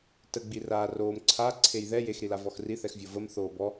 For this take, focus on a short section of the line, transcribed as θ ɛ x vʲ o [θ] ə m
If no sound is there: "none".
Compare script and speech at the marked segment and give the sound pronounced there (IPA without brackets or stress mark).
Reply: v